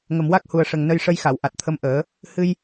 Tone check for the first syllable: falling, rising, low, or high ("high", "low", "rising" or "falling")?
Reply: low